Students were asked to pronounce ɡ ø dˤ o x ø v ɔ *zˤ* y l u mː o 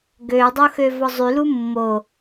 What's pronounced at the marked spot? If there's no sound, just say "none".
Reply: zˤ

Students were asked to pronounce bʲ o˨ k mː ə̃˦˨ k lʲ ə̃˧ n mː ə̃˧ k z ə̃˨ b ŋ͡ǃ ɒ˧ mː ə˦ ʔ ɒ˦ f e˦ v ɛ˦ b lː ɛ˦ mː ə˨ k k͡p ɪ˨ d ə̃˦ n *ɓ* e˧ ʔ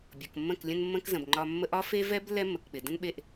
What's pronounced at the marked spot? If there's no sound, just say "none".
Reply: ɓ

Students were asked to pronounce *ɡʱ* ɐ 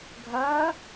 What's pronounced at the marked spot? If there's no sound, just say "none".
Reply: ɡʱ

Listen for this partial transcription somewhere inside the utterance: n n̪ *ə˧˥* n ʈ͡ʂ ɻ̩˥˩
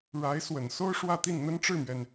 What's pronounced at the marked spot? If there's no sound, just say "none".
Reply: ə˥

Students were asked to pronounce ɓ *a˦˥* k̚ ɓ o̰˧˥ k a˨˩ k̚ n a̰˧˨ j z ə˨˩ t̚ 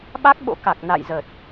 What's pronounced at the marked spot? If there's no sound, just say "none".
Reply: a˦˥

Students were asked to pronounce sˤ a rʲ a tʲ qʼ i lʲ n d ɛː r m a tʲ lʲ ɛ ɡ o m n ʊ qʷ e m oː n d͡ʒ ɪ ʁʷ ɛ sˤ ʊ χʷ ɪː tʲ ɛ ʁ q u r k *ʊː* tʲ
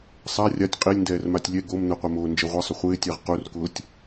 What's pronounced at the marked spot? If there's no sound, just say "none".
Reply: ʊː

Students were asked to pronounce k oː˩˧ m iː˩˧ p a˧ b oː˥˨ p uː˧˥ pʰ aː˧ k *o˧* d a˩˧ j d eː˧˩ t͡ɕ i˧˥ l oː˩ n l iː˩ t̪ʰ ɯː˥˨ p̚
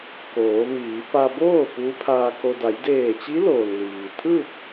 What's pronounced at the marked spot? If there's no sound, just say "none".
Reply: o˧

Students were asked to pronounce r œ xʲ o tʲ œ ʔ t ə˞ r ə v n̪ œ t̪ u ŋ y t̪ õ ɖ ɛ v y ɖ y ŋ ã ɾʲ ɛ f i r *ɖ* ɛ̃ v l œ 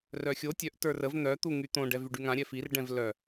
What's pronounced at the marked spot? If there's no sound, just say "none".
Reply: ɖ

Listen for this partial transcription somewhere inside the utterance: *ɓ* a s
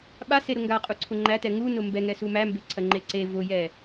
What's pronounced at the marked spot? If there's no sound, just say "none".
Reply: ɓ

